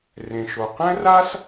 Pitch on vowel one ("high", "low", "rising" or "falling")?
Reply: low